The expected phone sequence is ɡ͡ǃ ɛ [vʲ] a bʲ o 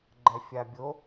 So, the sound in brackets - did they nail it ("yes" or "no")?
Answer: no